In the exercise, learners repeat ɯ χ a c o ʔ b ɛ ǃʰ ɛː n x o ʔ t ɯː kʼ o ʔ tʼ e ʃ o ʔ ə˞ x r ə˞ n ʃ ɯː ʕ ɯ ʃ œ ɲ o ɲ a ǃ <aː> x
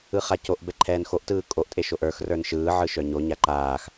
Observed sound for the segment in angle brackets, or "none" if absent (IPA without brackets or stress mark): aː